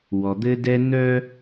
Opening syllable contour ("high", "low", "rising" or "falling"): low